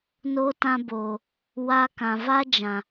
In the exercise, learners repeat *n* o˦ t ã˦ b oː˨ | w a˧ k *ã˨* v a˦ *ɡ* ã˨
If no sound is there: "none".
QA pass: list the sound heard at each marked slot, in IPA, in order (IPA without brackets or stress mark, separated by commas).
n, ã˨, d͡ʒ